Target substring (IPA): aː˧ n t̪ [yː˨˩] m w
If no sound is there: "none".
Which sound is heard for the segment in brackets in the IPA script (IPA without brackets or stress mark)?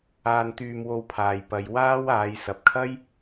yː˧